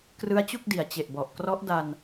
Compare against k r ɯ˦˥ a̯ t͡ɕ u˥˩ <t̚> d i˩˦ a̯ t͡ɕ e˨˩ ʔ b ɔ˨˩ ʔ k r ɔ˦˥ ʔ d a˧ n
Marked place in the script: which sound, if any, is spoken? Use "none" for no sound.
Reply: k̚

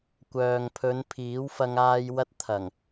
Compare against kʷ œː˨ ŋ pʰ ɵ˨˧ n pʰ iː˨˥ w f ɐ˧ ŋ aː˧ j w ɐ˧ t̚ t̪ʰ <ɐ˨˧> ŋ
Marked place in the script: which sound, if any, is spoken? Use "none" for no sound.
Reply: ɐ˨˩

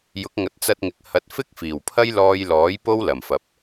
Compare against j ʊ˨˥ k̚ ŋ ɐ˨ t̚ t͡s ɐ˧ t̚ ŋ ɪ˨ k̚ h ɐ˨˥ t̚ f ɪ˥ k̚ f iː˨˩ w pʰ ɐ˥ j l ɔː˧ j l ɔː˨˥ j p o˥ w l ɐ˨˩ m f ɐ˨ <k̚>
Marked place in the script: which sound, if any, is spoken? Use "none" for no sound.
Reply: p̚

